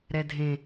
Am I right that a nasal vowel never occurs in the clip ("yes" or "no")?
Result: no